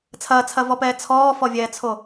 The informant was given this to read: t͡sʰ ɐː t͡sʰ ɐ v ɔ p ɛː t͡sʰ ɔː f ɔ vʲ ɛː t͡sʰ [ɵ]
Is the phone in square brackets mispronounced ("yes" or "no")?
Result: yes